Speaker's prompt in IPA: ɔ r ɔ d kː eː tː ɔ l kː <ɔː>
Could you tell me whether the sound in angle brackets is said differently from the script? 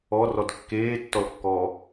no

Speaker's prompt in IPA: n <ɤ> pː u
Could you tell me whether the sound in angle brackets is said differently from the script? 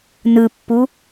yes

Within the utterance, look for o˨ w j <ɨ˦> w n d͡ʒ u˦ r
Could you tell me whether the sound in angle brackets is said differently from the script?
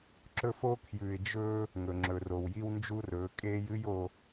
yes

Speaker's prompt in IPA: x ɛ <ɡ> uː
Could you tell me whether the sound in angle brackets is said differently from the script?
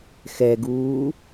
no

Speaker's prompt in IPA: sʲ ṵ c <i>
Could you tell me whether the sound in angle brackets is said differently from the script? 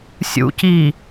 no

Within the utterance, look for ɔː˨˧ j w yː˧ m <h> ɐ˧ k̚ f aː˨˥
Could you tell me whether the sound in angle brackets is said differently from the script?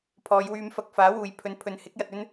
yes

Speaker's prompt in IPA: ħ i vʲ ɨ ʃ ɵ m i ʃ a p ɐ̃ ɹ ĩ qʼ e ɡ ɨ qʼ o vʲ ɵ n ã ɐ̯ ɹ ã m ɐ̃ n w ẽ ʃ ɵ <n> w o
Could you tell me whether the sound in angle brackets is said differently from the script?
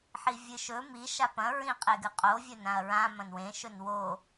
no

